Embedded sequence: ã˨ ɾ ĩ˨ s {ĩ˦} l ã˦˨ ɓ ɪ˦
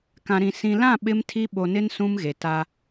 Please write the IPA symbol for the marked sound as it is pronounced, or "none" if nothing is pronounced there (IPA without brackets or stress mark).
ĩ˨